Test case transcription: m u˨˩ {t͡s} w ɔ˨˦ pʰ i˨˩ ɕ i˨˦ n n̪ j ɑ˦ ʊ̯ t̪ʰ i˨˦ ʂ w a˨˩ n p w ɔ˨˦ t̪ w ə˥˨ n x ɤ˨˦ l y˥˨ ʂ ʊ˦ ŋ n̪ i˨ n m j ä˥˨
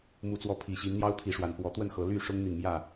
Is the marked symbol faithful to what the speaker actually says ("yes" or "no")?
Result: yes